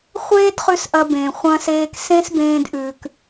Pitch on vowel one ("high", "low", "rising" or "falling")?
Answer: high